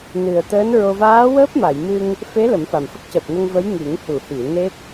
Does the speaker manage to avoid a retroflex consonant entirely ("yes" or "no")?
yes